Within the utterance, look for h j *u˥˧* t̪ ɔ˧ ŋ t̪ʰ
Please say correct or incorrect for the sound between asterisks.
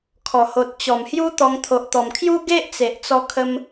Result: incorrect